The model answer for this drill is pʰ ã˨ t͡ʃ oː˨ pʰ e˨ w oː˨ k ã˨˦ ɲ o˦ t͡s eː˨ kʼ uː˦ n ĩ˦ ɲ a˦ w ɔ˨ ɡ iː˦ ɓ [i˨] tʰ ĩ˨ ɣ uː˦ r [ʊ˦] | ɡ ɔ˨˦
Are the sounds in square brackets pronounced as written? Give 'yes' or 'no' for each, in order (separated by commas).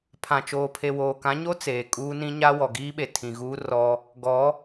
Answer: no, no